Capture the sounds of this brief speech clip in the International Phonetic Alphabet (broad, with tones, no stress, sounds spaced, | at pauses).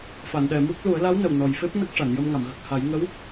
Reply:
f a˨˩˨ n ɗ ɛ˨˩˨ m u˦˥ k̚ l u˨˩˦ ə̯ l a˧˥ w n ə˨˩ w n ɔ˨˩ j f e˦˥ p̚ n ə˦˥ k̚ ʂ a˨˩˨ n j ə˧ m ŋ a˨˩˨ m ɣ ə˨˩ k̚ h a˨˩˦ j ŋ ə˧˥ w